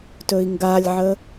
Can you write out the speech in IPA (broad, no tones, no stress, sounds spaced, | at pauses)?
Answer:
t ɵ i̯ ŋ ɡ a lʲ ʕ ə